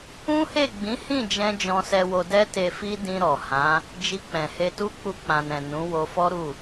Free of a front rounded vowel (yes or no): yes